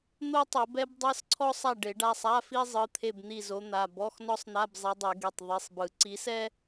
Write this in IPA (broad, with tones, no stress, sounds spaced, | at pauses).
n̪ o˥ tˤ o˨˩˦ b ɛ˥ b dˤ ɤ˧˥˧ s ǀʰ ɔ˥ sˤ a˦˨ ɖ e˨˩˦ ɖ a˩˧˩ sˤ a˧˥˧ f i˥ zˤ ɯ˩˧˩ t̪ʰ e˦˨ b n̪ i˦˨ z o˨˦ n̪ a˩˧˩ b ɔ˧˥˧ x n ɔ˥ sˤ n̪ a˧˥˧ b zˤ e˨˦ dˤ e˨˩˦ ɡ e˩˧˩ tˤ ðˤ i˩˧˩ sˤ b ɯ˨˩˦ ǀ i˨˦ s ɛ˥